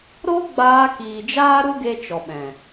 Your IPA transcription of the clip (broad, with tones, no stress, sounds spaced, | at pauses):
ɾ o˦ ɡ͡b aː˧ k iː˨ d͡ʒ aː˦ ɾ u˦ ɡ e˧ t͡ʃ ɔ˨ ɓ ɛ̃˨